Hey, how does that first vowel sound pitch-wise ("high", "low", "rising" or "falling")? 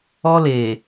high